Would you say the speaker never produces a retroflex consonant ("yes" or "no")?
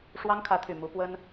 no